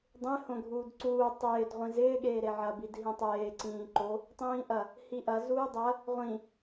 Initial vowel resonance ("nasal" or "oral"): nasal